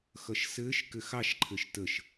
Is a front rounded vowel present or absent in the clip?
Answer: absent